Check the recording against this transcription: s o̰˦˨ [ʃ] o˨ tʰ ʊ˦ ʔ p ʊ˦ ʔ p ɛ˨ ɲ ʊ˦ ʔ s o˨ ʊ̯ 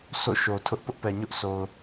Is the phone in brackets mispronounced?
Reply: no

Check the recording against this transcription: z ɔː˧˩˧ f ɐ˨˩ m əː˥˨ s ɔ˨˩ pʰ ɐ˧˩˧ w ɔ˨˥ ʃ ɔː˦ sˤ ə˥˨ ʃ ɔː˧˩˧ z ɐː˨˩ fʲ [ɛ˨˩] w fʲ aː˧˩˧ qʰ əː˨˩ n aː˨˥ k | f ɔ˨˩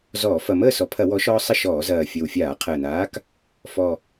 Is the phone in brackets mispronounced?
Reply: yes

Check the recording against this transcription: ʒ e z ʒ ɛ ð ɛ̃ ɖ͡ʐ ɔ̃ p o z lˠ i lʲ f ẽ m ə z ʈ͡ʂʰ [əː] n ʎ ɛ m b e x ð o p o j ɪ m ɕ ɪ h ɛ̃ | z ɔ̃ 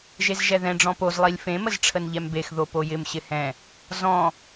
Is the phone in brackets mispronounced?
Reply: yes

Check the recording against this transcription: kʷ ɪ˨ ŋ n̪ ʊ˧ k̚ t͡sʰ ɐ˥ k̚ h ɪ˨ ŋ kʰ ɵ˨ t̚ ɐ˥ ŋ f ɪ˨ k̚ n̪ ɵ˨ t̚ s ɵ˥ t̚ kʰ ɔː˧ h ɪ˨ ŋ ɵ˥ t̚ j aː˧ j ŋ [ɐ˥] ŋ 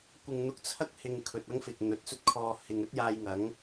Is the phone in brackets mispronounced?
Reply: yes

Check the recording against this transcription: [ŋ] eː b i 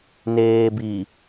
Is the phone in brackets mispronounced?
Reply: yes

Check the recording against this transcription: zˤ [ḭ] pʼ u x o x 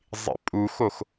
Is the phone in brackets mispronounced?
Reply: no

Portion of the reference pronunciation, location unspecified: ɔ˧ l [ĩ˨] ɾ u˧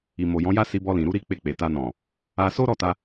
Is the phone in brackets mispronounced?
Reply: no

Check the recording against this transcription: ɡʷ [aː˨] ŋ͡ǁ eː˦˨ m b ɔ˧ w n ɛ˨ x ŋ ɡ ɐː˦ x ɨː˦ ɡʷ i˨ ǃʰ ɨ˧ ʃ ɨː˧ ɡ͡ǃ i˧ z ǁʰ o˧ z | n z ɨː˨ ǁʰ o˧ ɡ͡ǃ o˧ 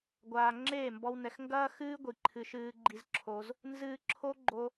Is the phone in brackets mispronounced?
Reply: no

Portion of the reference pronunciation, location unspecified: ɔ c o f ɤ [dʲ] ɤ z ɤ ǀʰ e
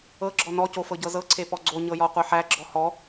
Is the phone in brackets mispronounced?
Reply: yes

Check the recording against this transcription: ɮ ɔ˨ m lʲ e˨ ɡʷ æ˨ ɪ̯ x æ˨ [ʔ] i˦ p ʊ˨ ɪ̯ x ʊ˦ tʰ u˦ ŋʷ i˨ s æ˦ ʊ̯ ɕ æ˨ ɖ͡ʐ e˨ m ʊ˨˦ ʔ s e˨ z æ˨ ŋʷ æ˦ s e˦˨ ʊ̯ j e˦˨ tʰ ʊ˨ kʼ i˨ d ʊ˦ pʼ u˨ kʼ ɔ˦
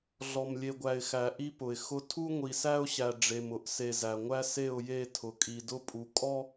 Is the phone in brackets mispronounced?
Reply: no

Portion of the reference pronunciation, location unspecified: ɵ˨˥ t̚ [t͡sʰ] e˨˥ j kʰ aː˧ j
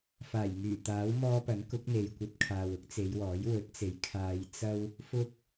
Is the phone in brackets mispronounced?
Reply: yes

